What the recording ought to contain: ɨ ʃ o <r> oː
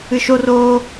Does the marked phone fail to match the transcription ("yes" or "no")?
no